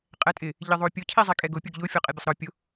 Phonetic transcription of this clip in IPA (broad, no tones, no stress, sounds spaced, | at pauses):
qʼ ɛ tʼ ɪ | ʎ ɪ ðˤ o pʲ ʊ cʰ i zˤ i kʼ ɛ ɡ ʊ pʲ ʊ ɡ ʎ ʊ fʲ ɔ qʼ e bʲ ʊ sˤ ɾ ɔ pʲ ʊ